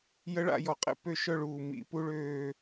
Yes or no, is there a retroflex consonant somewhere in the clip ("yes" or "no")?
yes